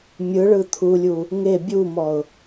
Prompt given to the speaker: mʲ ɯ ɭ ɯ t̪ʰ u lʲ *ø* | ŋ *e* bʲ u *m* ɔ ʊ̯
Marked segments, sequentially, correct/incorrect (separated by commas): incorrect, correct, correct